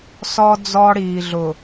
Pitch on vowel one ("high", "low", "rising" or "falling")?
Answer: high